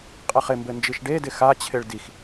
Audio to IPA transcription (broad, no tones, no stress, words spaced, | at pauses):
qʼɘχɪmbɘ nd͡ʒiʃɖedɪ xat͡ɕʰɪɭ dix